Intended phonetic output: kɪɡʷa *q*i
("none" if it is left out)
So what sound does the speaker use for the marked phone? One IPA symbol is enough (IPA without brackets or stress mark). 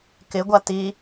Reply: t